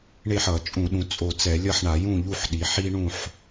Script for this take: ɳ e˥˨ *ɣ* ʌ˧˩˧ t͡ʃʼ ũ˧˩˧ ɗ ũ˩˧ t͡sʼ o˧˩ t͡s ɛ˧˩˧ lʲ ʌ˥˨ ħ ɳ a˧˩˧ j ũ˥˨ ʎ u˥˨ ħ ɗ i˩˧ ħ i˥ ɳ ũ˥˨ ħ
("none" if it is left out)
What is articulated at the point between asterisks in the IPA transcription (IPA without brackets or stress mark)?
ħ